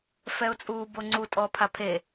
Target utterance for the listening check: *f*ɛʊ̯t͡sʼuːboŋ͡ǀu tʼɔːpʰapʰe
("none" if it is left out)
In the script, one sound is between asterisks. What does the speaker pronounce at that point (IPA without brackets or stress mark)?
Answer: f